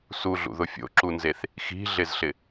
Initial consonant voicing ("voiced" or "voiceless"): voiceless